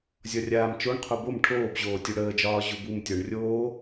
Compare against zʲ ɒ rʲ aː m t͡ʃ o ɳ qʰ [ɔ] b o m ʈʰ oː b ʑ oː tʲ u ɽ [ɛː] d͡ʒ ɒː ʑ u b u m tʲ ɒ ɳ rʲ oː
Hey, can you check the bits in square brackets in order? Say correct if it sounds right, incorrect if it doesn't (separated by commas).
incorrect, incorrect